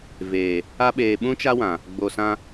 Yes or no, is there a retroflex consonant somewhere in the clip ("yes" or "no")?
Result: no